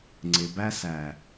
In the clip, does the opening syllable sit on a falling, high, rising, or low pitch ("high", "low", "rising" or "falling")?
low